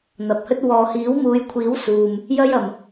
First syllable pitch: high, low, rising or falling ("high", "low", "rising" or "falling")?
low